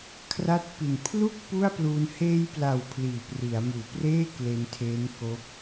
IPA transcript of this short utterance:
kʰra˦˥t̚pi˨˩n pʰlu˥˩k̚ pu˥˩a̯pluː˧n heː˧jpla˨˩w pʰliː˨˩pri˩˦a̯muː˨˩ preː˥˩kle˧n tʰeː˦˥nko˦˥k̚

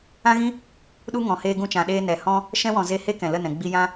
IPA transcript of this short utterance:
ã˦ɣĩ˦ | ɗu˦ŋɔ̃˨ heː˧ɡũ˧t͡ʃã˨ɗeː˧ nɛ˨hɔ̃˦ | ʃɛ̃˦wɔ̃˨ ze˧ he˦ kɛ̃˨lə˦˨nɛ̃˨ ɡ͡bi˧jã˦

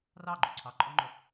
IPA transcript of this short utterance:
rɑɡ͡ǃu ǀʰɑǃʼoŋ͡ǃɵ

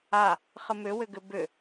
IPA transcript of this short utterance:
a | χəmʏwʏɡʏ bʏ

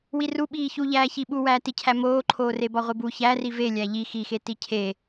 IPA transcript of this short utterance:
wiru ɓiːçuʎæː çiɓu wæːticʰæ moːǃʰoːrebɒ ʁʷebu çæri ve lʲæʎi xixe ticʰe

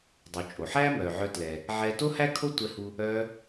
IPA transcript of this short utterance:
dˤu˩ t͡ʃʼo˩ħæː˥ mœː˩ʕœ˧tlɛ˩ | ʕɛː˧to˥hæ˥ kʰo˥tʷɛ˧hu˧ | œː˧

